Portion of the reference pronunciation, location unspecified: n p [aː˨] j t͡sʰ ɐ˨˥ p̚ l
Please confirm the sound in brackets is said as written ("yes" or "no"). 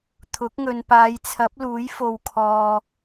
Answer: no